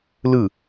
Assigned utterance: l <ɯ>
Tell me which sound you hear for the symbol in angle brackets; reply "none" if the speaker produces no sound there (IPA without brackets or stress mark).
ɯ